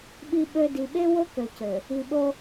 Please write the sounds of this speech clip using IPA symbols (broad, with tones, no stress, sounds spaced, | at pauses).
ɓ i˨ ɓ ø˨ d i˨ ɓ e˦ w o˦ k ø˨ c ø˨ | i˨ ɓ o˦